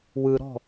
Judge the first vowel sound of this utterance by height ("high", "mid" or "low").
high